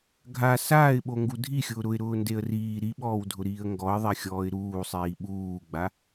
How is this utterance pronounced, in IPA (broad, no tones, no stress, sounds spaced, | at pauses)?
ɡʱ a s aː ɪ̯ ɓ o ŋ ɡ u dʱ i xʲ ʊː ɾ ʊ ɪ̯ ɾ ʊː n d e ə̯ r iː ɾ i ɓ ɔː w dʱ ʊ ɾ iː ə̯ ŋ ɡ ɔ ɪ̯ ðˤ ɛ xʲ ɔː ɪ̯ ɾ uː sˤ iː ɓ uː ɡ͡b a